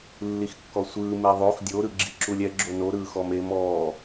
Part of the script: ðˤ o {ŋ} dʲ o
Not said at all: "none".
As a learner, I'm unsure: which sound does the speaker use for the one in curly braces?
x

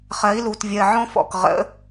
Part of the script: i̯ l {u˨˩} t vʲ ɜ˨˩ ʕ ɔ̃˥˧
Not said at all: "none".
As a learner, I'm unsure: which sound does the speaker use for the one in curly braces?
u˨˩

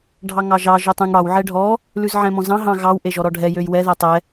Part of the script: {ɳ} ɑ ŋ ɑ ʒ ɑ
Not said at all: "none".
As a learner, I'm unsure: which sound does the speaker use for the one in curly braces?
ɖʱ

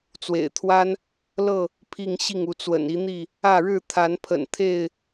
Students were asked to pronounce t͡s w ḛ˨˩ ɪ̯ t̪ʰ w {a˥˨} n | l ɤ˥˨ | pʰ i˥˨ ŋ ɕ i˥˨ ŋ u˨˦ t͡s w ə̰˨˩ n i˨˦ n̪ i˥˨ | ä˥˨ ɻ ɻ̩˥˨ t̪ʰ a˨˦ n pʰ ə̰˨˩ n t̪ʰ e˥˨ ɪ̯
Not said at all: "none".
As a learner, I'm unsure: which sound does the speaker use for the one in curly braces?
a˦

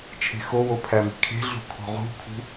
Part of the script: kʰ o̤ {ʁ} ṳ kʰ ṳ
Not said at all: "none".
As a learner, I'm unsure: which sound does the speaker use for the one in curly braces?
ʁ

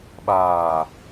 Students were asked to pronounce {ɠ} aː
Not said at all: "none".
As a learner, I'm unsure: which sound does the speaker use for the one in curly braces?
ɓ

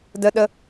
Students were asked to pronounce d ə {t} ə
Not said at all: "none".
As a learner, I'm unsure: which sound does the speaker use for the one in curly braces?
ɗ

